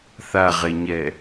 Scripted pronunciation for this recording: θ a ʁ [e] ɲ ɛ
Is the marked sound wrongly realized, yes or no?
no